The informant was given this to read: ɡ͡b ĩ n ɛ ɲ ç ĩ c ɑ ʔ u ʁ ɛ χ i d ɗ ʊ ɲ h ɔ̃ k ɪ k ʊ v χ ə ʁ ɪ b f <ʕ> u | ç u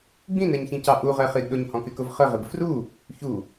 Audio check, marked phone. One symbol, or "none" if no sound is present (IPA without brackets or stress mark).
r